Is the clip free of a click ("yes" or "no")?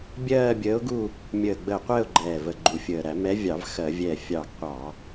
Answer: no